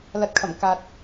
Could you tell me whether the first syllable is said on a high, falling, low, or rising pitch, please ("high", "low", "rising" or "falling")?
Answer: rising